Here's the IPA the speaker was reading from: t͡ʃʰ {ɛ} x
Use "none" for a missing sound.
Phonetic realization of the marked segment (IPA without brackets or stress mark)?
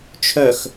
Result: œ